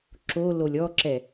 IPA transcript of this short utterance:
ǁ o l o lʲ ɔ ǁ ɛ

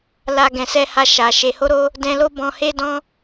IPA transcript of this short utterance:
l a˨ ɡ ɛ̃˨ s ɛ˧ h a˧ ʃ a˨ ʃ e˨ h o˧ ɾ o˧ | d ɛ̃˧ l o˦ b ɔ̃˧ h e˦ d ɔ̃˦

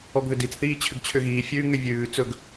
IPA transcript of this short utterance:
ɔ ɡ ð ʏ d i t͡s θ iː t͡ɕʰ ʏ ɡ t͡ɕʰ ʏ ɣ iː fʲ ʉ ŋ ʏ vʲ ʉː t͡s ɵ ɡ

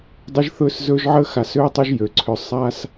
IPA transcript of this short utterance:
dˤ ə˦ ʒ θ ɵ˦ s z ɵ˦ ʒ ʕ ə˦ x a˧ s ø˦ tˤ ɵ˦ ʒ j ø˨ ǀʰ ø˧ sˤ a˦ s

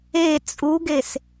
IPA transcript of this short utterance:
e t͡sʼ u ɡ e s

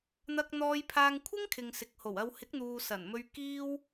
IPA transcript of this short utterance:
n̪ ɐ˧ k̚ n̪ ɔː˧ j pʰ aː˧ ŋ kʷʰ ɪ˥ ŋ kʰ ɪ˨ ŋ s ɪ˨ k̚ h o˨˩ w ɐ˧ w h ɪ˨˥ k̚ n̪ uː˨ s ɐ˨˩ n m ɵ˧ ɥ k iː˧ w

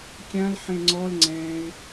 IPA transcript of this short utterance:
kʲ ã l ħ ẽ ŋ͡ǀ ɔ l ŋ͡ǀ ɛ̃ ɪ̯

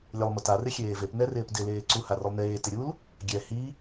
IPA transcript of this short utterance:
lʲ ɛ lˠ m ʊ t a r ɪ xʲ eː v e p n ɛ r ɪː p d ɪ l eː ǀ u h a r ʊ lˠ n eː t ɪ ɾʲ u l | ɡʲ ɛ h i

